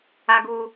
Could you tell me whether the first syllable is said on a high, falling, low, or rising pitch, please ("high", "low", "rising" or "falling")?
low